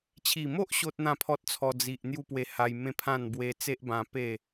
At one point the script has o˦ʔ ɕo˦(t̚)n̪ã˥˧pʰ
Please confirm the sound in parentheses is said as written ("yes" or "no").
yes